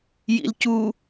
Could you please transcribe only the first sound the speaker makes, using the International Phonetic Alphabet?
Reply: j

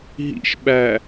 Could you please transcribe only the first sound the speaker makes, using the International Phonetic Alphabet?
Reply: ɦ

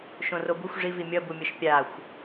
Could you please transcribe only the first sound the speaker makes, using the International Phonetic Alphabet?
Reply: ʃ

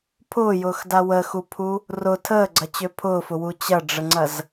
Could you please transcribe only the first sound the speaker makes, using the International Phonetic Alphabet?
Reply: pʰ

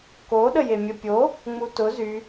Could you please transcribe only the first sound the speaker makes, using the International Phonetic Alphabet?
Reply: k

